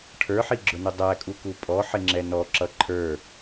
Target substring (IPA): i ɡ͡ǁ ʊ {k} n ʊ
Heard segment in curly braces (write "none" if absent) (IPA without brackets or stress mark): none